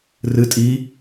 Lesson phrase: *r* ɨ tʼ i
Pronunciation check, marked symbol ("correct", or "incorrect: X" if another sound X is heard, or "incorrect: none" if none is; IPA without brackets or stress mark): correct